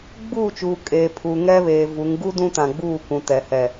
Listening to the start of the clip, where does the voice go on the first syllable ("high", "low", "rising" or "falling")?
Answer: falling